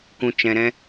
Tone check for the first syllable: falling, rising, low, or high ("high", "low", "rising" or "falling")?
low